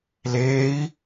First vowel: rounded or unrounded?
unrounded